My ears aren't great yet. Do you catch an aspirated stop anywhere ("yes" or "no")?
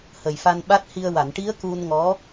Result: no